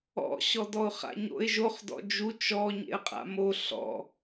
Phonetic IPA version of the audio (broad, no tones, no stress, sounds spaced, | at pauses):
ɔ̰ ɕ ɔ d ɔ ʊ̯ χ a̰ ɲ o̰ ɪ̯ ʒ o χ d ɔ̰ d͡ʒ u t͡ʃ ɔ ɲ ḛ ə̯ qʼ a̰ m o ɬ ɔ̰